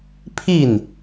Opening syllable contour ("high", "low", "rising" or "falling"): falling